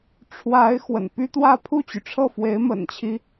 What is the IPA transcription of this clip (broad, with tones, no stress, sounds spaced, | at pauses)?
ʈ͡ʂʰ w a˧˥ ɪ̯ x w ə̰˨˩ n p y˥ t̪ w ä˥˧ pʰ u˥˩ t͡ɕ y˩ ʈ͡ʂʰ ɤ˥˩ f w e˧˥ ɪ̯ m ə̰˨˩ n t͡ɕʰ i˦